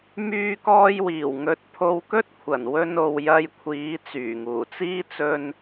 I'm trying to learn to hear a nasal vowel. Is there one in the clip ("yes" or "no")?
no